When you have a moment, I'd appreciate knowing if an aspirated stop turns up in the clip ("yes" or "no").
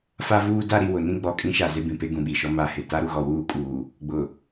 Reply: no